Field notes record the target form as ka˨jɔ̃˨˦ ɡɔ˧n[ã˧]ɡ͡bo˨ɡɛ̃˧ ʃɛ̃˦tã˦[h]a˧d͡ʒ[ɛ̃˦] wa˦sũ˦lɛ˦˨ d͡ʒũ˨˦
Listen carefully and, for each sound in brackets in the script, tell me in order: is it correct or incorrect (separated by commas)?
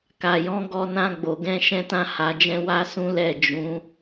correct, correct, correct